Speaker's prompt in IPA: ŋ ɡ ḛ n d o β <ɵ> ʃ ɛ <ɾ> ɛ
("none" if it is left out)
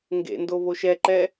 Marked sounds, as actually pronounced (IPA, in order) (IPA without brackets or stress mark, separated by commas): o, ǃ